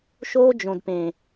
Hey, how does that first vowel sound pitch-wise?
high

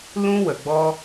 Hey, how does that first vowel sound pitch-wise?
high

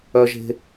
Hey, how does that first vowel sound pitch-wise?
high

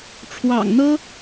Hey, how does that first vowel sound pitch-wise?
low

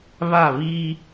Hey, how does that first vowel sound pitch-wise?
falling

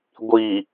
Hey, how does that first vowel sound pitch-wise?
low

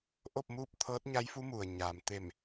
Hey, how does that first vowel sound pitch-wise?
falling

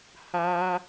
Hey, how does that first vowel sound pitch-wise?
high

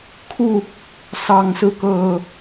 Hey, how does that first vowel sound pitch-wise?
falling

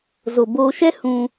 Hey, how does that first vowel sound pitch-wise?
low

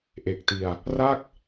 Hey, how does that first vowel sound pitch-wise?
low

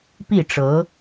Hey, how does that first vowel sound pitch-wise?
falling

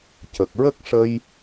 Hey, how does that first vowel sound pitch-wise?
low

